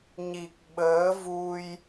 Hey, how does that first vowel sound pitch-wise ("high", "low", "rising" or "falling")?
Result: low